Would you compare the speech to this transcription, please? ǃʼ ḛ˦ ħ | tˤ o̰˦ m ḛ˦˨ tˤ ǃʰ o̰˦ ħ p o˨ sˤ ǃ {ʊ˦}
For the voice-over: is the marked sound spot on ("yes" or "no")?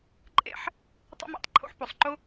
yes